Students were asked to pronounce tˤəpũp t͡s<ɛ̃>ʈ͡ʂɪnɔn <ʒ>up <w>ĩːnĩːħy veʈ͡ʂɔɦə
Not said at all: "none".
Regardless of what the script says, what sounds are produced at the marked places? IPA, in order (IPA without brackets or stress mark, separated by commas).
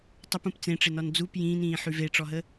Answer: ẽ, d͡z, j